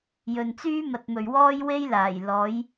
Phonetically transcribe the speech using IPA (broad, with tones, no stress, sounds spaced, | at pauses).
j ɵ˨ n t͡s yː˥ m ɐ˨ t̚ m ɵ˨ ɥ w ɔː˥ j w e˥ j l aː˨˩ j l ɔː˨˥ j